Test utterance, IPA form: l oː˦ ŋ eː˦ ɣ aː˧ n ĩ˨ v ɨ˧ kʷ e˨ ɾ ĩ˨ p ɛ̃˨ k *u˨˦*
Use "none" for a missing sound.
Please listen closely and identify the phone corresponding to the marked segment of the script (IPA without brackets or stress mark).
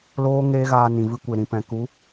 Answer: u˨˦